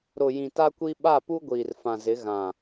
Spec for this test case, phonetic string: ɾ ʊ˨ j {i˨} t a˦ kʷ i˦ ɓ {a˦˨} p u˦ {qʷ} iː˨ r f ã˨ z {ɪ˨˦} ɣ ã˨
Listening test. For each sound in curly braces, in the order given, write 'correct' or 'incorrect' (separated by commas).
incorrect, correct, incorrect, correct